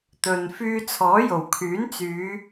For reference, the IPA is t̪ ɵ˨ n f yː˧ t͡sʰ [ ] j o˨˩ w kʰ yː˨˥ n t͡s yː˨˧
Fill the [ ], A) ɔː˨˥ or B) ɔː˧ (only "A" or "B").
A